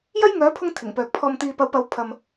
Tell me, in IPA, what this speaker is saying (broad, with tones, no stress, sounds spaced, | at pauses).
j ɐ˥ j ŋ œː˨˥ pʰ ʊ˧ ŋ t̪ʰ ɪ˨˩ ŋ p œː˨ k̚ pʰ ɔː˨ m t̪ iː˨ p ɐ˨˥ w p ɐ˨˥ w pʰ ɐ˧ m